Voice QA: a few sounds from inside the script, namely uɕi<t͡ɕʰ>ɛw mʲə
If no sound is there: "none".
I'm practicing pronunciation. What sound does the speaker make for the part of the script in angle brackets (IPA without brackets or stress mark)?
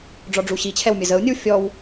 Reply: t͡ɕʰ